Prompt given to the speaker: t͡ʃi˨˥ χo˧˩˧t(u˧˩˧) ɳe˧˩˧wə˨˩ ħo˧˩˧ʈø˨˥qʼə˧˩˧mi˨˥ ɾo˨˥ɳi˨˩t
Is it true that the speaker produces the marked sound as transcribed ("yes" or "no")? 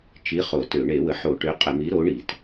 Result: no